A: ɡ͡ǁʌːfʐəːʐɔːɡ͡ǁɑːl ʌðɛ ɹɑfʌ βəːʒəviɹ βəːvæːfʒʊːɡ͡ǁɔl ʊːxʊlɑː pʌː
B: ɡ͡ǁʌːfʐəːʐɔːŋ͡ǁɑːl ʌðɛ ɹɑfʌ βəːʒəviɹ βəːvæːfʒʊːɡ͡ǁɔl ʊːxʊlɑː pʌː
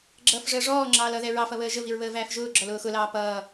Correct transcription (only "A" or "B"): B